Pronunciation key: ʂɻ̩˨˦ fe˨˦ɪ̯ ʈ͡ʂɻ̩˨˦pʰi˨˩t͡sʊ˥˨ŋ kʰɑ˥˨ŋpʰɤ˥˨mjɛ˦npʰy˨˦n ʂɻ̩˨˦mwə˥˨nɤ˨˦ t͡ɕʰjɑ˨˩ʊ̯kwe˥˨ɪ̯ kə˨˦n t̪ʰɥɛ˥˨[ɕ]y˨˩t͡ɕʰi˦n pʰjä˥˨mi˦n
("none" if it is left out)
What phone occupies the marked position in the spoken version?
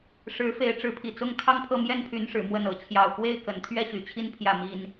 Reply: ɕ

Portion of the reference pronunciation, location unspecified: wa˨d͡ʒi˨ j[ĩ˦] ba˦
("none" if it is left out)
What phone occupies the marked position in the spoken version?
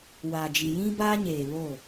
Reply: ĩ˦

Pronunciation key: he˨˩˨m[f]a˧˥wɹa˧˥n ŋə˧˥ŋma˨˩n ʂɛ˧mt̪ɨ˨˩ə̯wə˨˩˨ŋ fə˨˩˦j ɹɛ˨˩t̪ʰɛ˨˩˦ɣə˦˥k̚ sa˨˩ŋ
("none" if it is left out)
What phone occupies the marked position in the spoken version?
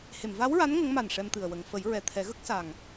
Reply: v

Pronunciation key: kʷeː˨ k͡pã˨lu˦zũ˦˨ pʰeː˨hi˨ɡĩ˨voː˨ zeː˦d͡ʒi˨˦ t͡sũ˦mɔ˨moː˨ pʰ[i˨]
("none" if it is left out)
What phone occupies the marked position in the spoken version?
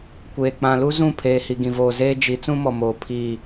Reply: i˦˨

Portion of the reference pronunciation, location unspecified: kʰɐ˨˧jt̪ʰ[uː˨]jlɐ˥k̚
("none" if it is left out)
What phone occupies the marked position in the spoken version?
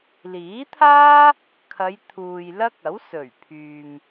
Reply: uː˨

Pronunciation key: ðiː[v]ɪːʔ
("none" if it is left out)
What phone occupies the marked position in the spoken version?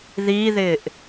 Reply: ð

